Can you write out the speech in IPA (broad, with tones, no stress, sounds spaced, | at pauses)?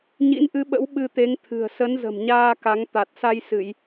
ɲ ḭ˧˥ n ʔ ɨ˨˦ ɓ ə̰˧˥ w ɓ ɨ˧ t̪ e˨˦ ŋ t̪ʰ ɨ̤˨˩ ə̯ s ə˨˦ n z ə̤˨˩ m ɲ aː˧ k a˨˦ ŋ t̪ a˨˩ t̚ s a˧ j s ɨ˧˩˨ j